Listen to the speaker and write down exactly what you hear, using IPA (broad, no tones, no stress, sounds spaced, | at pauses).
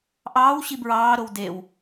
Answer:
ʔ ɑː w ɕ i b ɹ ɑː ɾ o w d e w